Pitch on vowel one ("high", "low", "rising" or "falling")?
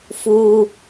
high